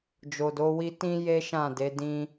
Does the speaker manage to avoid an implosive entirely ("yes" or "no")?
yes